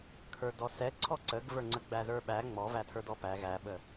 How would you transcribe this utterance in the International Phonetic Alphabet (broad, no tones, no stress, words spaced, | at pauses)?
kʰə˞dɔsɛ ǀʰɔǀəɡvə˞ ŋ͡ǀəɡ͡bæzə˞ɓæ ŋ͡mɔ vætʰə˞dɔpæ ɣæɓə